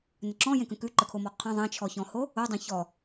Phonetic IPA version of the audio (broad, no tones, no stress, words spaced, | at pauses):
nəǁɔ̃jẽkə̃ kʉǃəkʰomɔ qʰə̃ ðˤẽt͡ʃʰɔçɔ̃ho | odˤẽ çɔ